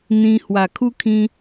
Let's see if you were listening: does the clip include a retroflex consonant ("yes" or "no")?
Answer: no